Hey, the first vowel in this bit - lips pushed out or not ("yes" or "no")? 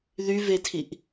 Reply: yes